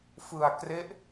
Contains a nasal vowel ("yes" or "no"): no